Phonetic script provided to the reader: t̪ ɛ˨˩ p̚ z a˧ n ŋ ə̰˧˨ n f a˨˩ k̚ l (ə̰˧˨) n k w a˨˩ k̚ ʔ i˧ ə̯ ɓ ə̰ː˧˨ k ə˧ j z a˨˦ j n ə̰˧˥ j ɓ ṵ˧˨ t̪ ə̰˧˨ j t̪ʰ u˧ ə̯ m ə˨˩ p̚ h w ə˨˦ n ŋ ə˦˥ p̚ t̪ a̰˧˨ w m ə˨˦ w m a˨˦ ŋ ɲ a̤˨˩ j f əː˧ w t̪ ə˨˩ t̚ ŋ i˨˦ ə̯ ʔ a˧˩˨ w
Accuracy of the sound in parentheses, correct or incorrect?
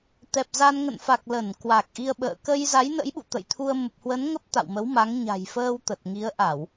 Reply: incorrect: ə˧˩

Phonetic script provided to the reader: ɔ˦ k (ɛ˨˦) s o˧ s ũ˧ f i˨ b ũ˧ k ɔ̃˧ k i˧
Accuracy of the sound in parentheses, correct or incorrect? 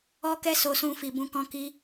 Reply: incorrect: ɛ˦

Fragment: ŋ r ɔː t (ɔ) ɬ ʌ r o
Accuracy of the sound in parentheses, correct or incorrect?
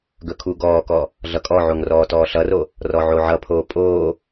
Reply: incorrect: ɔː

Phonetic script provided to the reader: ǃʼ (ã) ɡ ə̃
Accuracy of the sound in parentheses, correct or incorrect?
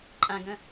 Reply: correct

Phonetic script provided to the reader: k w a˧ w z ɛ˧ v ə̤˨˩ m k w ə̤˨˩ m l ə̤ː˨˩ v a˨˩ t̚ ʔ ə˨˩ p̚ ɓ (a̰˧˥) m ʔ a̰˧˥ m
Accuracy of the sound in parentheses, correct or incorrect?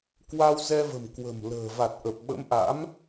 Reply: incorrect: ə̰˧˥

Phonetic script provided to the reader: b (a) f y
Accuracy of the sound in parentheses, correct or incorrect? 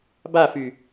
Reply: correct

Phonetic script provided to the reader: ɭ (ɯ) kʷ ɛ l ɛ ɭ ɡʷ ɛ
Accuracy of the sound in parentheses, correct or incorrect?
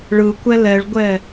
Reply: correct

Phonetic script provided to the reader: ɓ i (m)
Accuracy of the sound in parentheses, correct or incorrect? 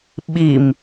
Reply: correct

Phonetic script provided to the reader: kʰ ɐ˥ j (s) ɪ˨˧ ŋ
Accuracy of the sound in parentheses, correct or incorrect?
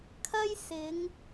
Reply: correct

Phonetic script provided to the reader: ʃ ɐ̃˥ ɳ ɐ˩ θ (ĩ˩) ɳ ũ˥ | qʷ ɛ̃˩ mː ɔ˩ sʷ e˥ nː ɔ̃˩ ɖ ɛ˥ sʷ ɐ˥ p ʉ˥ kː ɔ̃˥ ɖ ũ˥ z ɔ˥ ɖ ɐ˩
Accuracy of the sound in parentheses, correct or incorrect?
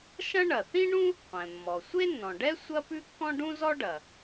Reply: incorrect: ĩ˥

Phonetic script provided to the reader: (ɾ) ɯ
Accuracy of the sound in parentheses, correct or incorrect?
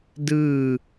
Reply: incorrect: d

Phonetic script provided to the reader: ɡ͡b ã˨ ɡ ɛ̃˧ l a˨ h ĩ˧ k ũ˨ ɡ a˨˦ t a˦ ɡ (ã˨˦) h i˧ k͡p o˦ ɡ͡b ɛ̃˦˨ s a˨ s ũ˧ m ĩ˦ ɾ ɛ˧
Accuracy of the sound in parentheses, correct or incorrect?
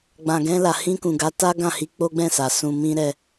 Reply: incorrect: ã˦˨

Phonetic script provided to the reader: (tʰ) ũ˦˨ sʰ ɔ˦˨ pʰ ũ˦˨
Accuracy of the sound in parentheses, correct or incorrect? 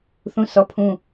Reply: incorrect: θ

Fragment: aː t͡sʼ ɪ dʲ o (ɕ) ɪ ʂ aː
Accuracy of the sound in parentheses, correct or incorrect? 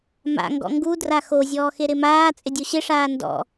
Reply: correct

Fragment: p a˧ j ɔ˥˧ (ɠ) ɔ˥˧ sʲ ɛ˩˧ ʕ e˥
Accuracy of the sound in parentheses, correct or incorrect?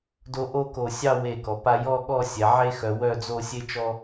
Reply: correct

